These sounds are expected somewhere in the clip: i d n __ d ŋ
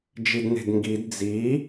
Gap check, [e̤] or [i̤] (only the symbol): e̤